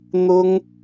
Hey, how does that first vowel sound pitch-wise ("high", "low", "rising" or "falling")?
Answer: high